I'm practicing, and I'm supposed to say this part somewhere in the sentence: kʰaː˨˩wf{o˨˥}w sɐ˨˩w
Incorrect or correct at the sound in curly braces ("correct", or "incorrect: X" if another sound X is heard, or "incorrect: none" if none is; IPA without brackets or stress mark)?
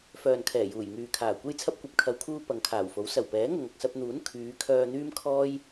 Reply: correct